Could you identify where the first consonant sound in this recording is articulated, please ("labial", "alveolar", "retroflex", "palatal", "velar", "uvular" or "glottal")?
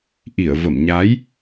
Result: glottal